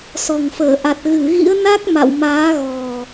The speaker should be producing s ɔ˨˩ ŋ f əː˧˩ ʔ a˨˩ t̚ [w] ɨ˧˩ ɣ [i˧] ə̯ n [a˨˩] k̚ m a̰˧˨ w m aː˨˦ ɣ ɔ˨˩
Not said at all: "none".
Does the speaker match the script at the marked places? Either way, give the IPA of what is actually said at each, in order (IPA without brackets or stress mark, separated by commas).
ɣ, ḭ˧˥, a˦˥